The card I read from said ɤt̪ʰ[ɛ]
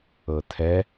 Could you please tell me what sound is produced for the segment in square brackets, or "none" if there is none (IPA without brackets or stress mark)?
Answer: ɛ